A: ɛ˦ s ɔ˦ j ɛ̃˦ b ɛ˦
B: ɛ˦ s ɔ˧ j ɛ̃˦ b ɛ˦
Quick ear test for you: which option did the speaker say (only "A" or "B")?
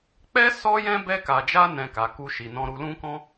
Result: A